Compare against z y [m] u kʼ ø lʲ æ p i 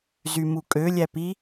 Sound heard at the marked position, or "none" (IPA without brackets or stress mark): m